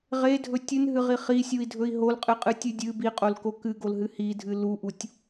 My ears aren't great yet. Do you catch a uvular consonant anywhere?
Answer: yes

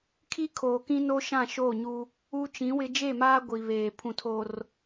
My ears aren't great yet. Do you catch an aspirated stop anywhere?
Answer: yes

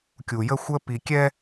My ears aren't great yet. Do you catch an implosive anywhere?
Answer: no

